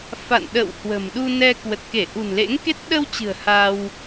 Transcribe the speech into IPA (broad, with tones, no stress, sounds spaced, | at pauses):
f a̰˧˨ n ɗ ə̰˧˨ w h w ə̤˨˩ m ɗ u˧ n ɛ˧ k w ə˨˩ t̚ k e˧˩ ʔ ṳ˨˩ n l ḛ˧˥ ŋ k e˦˥ t̚ ɗ ə˧ w t͡ɕ ɨ̤˨˩ ə̯ h a˧ w